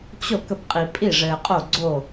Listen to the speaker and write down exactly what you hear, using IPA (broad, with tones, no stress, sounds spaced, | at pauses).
t͡ɕ o˥˩ k ə˥˩ p qʼ i˨ pʼ i˥˩ ʐ ɘː˨ qʼ o˥˩ ɡ͡ǀ o˥˩